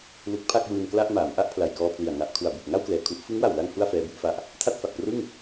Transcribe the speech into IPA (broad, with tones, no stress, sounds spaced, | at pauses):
l u˦˥ k̚ pʰ a˥˩ k̚ w ɯː˧ n k l a˥˩ ʔ m aː˩˦ m ʔ a˥˩ ʔ pʰ l a˨˩ j k ɔː˧ pʰ l i˨˩ a̯ ŋ a˨˩ ʔ kʰ u˨˩ a̯ b u˨˩ k̚ ŋ a˥˩ w k l ɛː˨˩ kʰ u˦˥ ʔ f ɯ˦˥ ŋ w a˨˩ w l a˧ ŋ h u˥˩ a̯ f ɛː˦˥ b u˥˩ ʔ f a˦˥ ʔ | tʰ a˥˩ t̚ f a˨˩ k̚ p r ɯ˥˩ ŋ